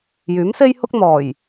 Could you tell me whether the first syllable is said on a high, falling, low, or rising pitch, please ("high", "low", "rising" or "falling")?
rising